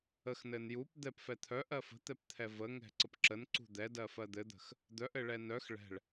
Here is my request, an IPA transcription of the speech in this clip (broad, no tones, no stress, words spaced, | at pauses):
əxnɘn jup d̪ɛpfɛ t̪ʰœʔɜ fə̤t̪ɛpt̪ʰɛ vəŋɛ̤ǀəp ǁənǀṳ d̪ɛdɜfɜ d̪ɘd̪ə̤x | d̪œʔɘɭɛ nœx ɭɛ̤ɭ